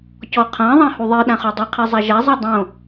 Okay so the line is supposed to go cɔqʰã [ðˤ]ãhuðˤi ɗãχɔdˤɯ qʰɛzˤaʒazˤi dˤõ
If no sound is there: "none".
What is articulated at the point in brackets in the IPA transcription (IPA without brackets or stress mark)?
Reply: ðˤ